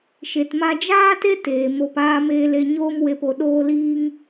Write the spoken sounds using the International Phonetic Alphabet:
ʃ e˨ t m a˧ d͡ʒ aː˦ t e˦ t eː˨ m o˧ p aː˧ m eː˧ l e˧ ɲ oː˦ m w e˧ p o˨ ɗ oː˧ l iː˧ ŋ

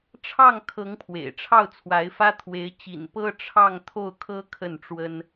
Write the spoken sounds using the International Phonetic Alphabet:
ʈ͡ʂʰ ɑ˥˩ ŋ kʰ ɤ˧˥ ŋ pʰ w ḛ˨˩ ɪ̯ ʈ͡ʂʰ ɑ˥˩ ʊ̯ t͡sʰ w a˧˥ ɪ̯ f ä˥ t̪ʰ w e˧˥ ɪ̯ t͡ɕ ḭ˨˩ n p ɤ˥ ʈ͡ʂʰ ɑ˥˧ ŋ t̪ʰ o˥˩ ʊ̯ kʰ ɤ˥ kʰ ə˥˩ n ʈ͡ʂ w ə˥ n

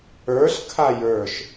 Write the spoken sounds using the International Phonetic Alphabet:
ə˞ ɬ kʰ a j ə˞ ʃ

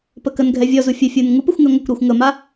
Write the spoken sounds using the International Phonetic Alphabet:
p ə k ə n ɡʱ ɛ vʲ ɔ z u fʲ ə fʲ u n ŋ u p ə xʷ ŋ ɛ ŋʷ ə kʷ ɾ ɔ xʷ ŋ ə m a

